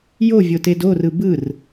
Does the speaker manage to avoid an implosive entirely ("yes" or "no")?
yes